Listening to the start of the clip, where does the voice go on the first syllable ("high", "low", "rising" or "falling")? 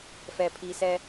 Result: low